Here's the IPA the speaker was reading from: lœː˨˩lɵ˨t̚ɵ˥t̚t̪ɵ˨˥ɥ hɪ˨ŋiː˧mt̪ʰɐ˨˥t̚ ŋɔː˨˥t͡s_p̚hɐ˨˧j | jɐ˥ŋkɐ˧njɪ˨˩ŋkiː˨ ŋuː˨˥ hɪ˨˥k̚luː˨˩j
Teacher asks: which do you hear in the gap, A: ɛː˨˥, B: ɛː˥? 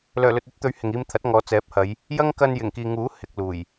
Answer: A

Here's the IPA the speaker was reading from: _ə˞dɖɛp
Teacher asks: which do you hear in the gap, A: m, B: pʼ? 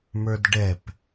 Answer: A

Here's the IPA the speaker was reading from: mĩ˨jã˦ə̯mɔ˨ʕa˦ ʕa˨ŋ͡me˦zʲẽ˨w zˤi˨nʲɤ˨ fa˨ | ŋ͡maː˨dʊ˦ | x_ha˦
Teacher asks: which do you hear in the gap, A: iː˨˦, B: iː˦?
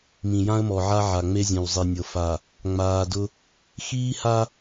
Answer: B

